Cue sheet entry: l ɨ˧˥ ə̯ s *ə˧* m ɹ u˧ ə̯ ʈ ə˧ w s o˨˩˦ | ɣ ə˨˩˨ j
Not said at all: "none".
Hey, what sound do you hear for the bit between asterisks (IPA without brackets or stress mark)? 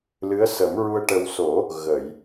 ə˨˩˦